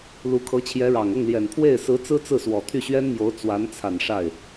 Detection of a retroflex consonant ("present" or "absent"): present